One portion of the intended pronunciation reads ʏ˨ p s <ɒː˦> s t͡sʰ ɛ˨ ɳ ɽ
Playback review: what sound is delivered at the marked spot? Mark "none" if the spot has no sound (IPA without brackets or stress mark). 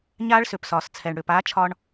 ɒː˨